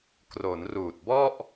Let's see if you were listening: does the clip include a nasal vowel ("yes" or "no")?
no